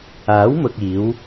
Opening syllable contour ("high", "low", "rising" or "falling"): rising